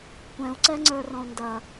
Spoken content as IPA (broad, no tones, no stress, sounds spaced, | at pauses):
kʷ ɛ̃ u̯ ǀ ɛ ŋ͡ǀ ə˞ r ɔ̃ u̯ n d ɐ